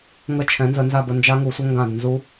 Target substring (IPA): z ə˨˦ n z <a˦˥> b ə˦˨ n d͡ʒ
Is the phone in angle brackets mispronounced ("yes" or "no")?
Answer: yes